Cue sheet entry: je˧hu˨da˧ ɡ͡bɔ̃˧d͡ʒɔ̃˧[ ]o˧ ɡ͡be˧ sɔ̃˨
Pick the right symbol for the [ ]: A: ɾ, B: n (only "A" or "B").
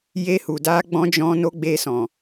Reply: B